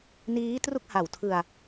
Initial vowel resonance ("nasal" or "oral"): oral